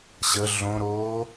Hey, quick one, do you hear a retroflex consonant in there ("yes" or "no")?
no